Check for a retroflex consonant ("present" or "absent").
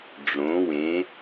present